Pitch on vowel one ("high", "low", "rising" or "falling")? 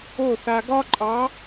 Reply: falling